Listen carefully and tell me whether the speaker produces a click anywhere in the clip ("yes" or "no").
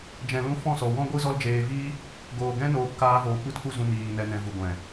no